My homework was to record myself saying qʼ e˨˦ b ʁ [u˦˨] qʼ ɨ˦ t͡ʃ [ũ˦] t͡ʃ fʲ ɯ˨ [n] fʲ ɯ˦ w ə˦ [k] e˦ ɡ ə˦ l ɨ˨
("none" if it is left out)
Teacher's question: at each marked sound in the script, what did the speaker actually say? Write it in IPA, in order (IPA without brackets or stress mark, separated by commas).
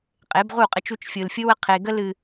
u˦˨, u˦, l, qʰ